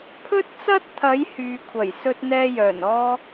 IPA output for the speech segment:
pʰɵ˥t̚t͡sɐ˥t̚t̪ʰɐ˨˧j hyː˨kʷʰɐ˨˩j sɵ˥t̚n̪ɛː˥jœː˨˩nɔː˥

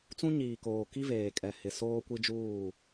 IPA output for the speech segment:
t͡sũ˦ɲiː˨koː˨ ki˦veː˨kʼɛ˨ hɪ˨ soː˦ kʷi˦d͡ʒuː˦˨

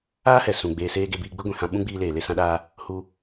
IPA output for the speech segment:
aː˦hɛ˨ sũ˨ɡ͡beː˧seː˦ ɡe˧biː˧ɡ͡bɨ˦ ɡʷĩ˨hã˧ ɓũ˦ɡ͡biː˧leː˨ le˦sã˦ɗaː˦ | hu˧

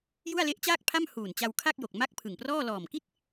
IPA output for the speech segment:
ju˥˩a̯le˦˥ʔt͡ɕaː˥˩k̚pʰa˥˩m huː˨˩nt͡ɕa˧wkʰa˥˩k̚jo˨˩k̚ ma˥˩k̚pʰɯ˨˩ŋprɔː˥˩ lɔː˨˩mki˥˩t̚

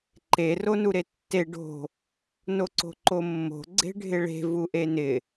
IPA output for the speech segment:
ǃe ronuɾetːe ɖo̤ | noǀo̤ǃomːo̤ ɡ͡ǀe̤ɖʱɪɭe̤ vuʔenɪ

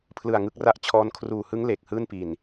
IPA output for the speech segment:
pʰlɯ˨˩a̯ ŋɯ˦˥k̚ra˥˩ʔ t͡ɕʰɔː˦˥n kʰruː˨˩hɯ˦˥ŋ le˨˩k̚hɯː˥˩npi˨˩n

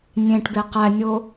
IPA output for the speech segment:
nʲẽʈbe qænʲo

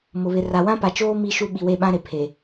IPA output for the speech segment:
mʊ˨βɪ˨ ra˨wã˦pa˨t͡ʃoː˦ mi˦ʃu˦ ɓi˨we˦˨ɓã˦ɾe˨ pʰe˨

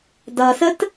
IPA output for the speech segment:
dʌsət

